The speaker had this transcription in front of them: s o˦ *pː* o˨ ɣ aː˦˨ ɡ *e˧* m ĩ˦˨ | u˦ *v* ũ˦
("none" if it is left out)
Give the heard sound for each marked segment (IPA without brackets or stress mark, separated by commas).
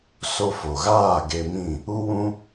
f, e˧, w